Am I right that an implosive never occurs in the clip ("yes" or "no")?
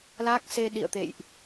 no